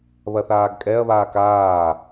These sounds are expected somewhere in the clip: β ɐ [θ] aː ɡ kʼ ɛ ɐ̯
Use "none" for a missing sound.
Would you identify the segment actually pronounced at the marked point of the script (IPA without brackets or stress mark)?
θ